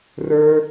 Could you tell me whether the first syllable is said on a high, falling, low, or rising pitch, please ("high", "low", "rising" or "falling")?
low